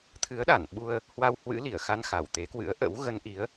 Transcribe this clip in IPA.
t̪ʰ ɨ˨˦ ə̯ ɗ a˧˩ n ɓ u˧ ə̯ | h w a˧ w h w ɨ̰˧˥ l i˧˩ ə̯ x a˧ n x a˧˩ w t̪ e˨˦ k w ɨ̰˧˥ ə̯ ʔ ə̰˧˥ w ɣ ə˧ n ʔ i˨˦ ə̯

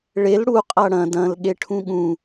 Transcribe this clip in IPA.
ɭ e l ɽ u qʼ ɐ ɽ ɐ̃ d ɐ̃ l ɠ e ʈʰ ũ ɠ ũ

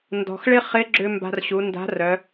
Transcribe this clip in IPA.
n d ɔ̤˩ x ɭ ɪ˥ χ ɪ˧˥ ɡ͡ǁ ʏ˧ m b a̤˧ r ɕ u˩˧ n d a̤˧˥ r œ˩˧

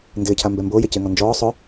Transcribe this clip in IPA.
n d ɪː cʰ a m b ɛ m b oː j e c ɪː ŋ ɔ n d͡ʒ ɔː sˤ ʊ

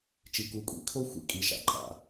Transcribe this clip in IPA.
t͡ʃ i˨ k u˨ kʷʼ ḭ˨ kʰ o˦ xʷ ḭ˨ kʼ i˨ ʃ a̰˨ ǃʼ a̰˨

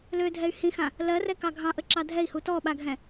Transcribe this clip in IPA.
l ø dʱ ɛ y̯ h ĩ x ã | l ɜ r ɛ k ɑ ɡʱ ɑ̃ ʔ ə ǁ ɑ dʱ ɛ i̯ h u t ɔ ɓ a ɡʱ ɛ̃

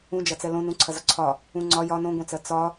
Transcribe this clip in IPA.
ũ d͡ʒ ɐ t͡s ɛ l õ n ũ ǀʰ ɐ z ɒ ǀʰ ɒ | ũ ŋ͡ǀ ɒ j ɒ n õ ɡʷ ẽ t͡s ɜ t͡s ɒ

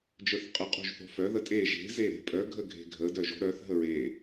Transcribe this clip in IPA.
d͡ʒ ə˞ θ qʼ ə qʼ o̤ ʒ θ o̤ f œ ð ə tʼ e ʒ e̤ z e ɾ e̤ pʼ œ ɡʱ ə ɡʱ e̤ ɡʱ ə d œ ʒ o̤ ɾ œ θ ɦ ə ɹ e

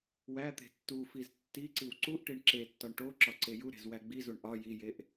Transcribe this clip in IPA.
w æ t̪ e̤ tː u f i z tː i ǀ i w ǀ u ʔ ʈ i ɳ ǁ e tː ɒ ɳ ʈ o ǁ ɒ ǀ e j u ɾ e̤ z w æ ɡ͡b i z u ɳ ʔ ɒ j i j e ʔ

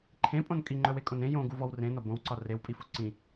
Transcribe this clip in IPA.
ǃʰ ẽ pʼ õ n kʼ i ŋ͡ǃ œ w e kʼ õ n ẽ j õ ɡ u v ɔ w r ẽ n ɒ b õ w ǀ ɒ r e w pʼ i f u ǀ ĩ

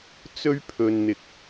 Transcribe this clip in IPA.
t͡s ɵ˥ ɥ pʰ ɵ˧ n n̪ ɪ˧ k̚

